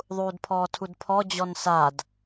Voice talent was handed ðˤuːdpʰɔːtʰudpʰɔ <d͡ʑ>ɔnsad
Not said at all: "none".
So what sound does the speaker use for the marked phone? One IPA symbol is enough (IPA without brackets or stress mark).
d͡ʑ